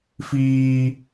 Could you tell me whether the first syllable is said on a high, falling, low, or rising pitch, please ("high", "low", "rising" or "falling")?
high